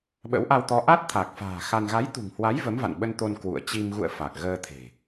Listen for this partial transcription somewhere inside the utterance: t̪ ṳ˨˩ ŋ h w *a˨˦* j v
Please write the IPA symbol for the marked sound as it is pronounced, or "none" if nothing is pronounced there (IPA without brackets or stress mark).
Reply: a˨˦